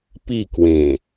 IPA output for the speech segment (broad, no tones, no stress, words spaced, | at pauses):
pikwẽ